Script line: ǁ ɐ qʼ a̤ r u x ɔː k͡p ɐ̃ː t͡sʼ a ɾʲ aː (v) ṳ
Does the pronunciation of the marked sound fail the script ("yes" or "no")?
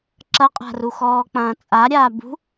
yes